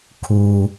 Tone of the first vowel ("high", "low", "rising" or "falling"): low